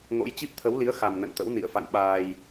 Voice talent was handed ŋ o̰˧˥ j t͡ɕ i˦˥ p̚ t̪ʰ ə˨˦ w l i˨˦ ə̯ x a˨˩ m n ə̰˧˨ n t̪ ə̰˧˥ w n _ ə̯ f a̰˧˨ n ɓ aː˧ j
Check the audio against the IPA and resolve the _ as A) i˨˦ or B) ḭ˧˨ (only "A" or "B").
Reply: B